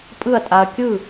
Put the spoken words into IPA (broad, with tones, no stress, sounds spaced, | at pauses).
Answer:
pʼ ɯ˥˩ ɐ̯ tʼ a˨ ɐ̯ kʲ ɯ˥˩